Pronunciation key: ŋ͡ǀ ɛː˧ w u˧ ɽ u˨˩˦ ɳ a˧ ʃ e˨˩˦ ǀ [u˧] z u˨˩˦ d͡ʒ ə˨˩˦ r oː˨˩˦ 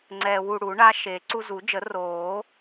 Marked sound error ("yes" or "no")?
no